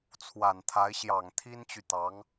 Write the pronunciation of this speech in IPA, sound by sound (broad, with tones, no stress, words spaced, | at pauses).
t͡sʰwa˨˩nt̪ʰa˧˥ɪ̯ ɕjɑ˨˩ŋt̪ʰi˥nt͡ɕy˨t̪ɑ˧˥ŋ